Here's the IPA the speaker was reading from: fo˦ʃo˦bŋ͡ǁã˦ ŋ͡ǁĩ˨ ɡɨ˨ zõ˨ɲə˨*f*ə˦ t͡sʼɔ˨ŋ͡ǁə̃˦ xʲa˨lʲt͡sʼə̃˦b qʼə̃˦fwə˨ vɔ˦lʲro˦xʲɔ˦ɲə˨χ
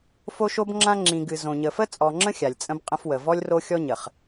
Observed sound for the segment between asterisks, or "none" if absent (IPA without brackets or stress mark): f